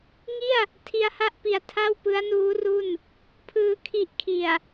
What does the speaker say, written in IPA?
ŋi˥˩a̯ | tʰi˧a̯ha˥˩ʔpi˨˩a̯ tʰa˥˩wpɯ˦˥a̯nuː˦˥ru˥˩n | pʰɯː˧ kʰi˦˥ʔ kʰi˨˩a̯

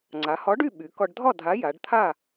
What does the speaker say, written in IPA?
ŋ͡ǀa˩˧hɒ˨˥ɖy˥˨ ɓy˩˧kɒ˧ɖ dʱɒ˥˨dʱa˨˥ ja˩˧ɖt̪ʰa˥˨

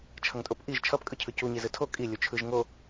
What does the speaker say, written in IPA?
t͡ʃʰʌŋtʼopʔiʒ t͡ʃʰʌp kʼɯcʰɯcu ɲizɯtʰo kʼi lʲut͡ʃʰɯʒ ŋo

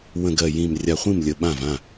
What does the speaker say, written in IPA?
wə̃˧˩ɡ ɜ˧˩jĩ˧˩m rʲa˧˩χʷĩ˥˩m lʲə˧˩ɓã˥˩v ã˥˩

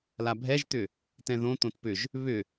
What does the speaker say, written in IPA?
labʱɛʒt̪ʏ | tɛ̃ðõ t̪õtpʏʒ | βʏ

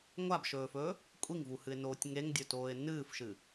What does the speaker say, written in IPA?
ŋʷabʃɵːfɵː | kʷʼiŋvuhɨɪ̯noːtʲ ŋeŋdʲɵtoːɪ̯ nɨːfʃɨ

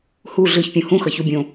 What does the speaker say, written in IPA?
hu ɮɯçpʲõ hũxʌçu bʲõ

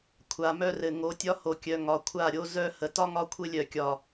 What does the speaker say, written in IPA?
kʷʰa˨mœ˦rɘ˨ ŋo˨˦tʲɒ˦ho˨kʲœ˨ ŋɒ˨kʷʰa˦˨ɾʲo˦ zœ˦ hə˨tɒ˦ŋɒ˦ kʷʰɘ˦lʲœ˨kʲɒ˨

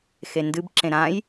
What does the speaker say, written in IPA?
xendɨbǁẽ ɾãj

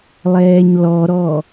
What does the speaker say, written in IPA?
lˠɛːɲlɔɾɔ

